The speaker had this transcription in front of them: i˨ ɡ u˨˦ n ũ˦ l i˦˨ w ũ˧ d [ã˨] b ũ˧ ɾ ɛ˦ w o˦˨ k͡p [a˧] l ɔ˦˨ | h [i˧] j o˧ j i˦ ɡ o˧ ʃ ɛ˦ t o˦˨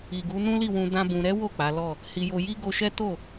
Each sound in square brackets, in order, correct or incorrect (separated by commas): incorrect, incorrect, correct